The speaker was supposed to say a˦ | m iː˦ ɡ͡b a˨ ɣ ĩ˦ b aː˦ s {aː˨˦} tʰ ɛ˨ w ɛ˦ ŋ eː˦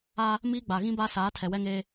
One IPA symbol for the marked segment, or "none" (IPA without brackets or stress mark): aː˨˦